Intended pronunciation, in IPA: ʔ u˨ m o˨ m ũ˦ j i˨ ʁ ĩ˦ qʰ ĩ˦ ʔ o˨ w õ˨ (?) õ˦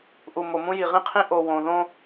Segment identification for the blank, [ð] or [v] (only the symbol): ð